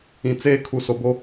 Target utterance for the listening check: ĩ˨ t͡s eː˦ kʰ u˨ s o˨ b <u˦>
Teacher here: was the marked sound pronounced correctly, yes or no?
no